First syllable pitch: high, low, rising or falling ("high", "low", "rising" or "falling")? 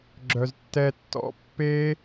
low